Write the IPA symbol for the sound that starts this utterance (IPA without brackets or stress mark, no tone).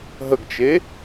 ɦ